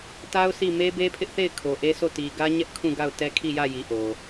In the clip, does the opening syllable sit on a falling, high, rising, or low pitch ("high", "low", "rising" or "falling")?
high